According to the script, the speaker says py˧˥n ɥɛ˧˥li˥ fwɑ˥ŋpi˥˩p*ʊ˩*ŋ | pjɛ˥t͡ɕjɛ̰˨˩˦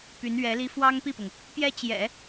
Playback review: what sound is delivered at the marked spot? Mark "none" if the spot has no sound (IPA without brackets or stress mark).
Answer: ʊ˩